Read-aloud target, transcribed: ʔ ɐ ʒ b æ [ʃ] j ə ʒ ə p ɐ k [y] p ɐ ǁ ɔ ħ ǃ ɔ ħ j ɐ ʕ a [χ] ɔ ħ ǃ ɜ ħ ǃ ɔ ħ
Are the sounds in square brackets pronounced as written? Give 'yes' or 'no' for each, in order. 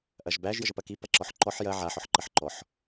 no, no, no

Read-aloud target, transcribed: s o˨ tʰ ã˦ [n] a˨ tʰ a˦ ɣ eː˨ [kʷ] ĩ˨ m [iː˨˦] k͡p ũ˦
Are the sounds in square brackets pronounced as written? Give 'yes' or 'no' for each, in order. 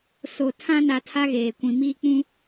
yes, yes, no

